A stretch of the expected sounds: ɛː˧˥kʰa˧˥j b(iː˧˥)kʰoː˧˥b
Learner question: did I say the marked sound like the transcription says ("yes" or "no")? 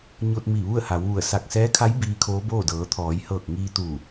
yes